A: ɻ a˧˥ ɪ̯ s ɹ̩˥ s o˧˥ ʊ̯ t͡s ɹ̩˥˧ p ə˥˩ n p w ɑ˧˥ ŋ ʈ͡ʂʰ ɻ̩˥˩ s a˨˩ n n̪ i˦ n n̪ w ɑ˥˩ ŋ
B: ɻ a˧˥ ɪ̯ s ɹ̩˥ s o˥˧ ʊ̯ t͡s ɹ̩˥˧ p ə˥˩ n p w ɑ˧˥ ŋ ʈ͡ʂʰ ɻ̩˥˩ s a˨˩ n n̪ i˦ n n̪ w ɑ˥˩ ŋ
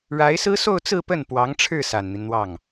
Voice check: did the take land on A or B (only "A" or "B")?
B